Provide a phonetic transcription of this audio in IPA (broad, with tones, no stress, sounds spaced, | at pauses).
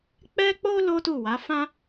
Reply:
k͡p ɛ˦ k͡p o˦ l o˦ t u˦˨ w a˨˦ f ã˦